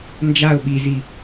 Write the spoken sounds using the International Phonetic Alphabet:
nd͡ʒaʊ̯ ɓizi

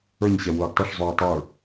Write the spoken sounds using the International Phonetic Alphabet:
ə˞ɲɕɛ wʊːɡtˤəʂzˤuː tˤə˞

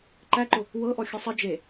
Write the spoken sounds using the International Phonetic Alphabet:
ǃæǃʊ | wɤʔɔ xʲəsˤə d͡ʒe

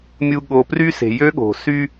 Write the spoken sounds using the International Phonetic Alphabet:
mʲu˨ ɠo˨pry˦se̤˨ jø˦ɠo̤˨ sy˦

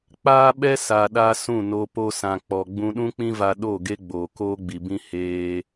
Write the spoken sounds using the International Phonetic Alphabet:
k͡paː˦ɓɛ˦ sa˨ɗa˧ sũ˦˨no˧ po˧sã˨k͡pɔ˨ ɡ͡bũ˧ɗũ˦k͡pĩ˦va˧ ɗo˦˨ɡe˦ɡ͡boː˨ koː˦ɡ͡bi˨bĩ˦ heː˧

